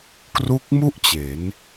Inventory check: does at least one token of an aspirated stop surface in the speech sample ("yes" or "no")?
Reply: no